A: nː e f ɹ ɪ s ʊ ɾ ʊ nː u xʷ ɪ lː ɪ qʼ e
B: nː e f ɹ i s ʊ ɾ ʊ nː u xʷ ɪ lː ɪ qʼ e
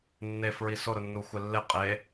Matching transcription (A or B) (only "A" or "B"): B